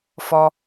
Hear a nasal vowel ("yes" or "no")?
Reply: no